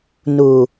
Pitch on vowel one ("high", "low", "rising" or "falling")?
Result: low